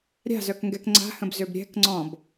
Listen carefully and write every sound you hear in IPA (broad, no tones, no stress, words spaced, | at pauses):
ɾʲa̤zœkŋɡɛk ŋ͡ǀa̤hə̃bzøb ɾʲɛ̤kŋ͡ǀɔ̃b